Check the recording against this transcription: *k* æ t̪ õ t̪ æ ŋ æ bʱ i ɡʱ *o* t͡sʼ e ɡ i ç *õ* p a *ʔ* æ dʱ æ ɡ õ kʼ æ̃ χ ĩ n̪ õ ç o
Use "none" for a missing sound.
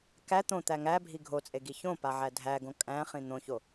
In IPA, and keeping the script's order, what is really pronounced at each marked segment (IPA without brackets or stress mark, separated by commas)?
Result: k, o, õ, ʕ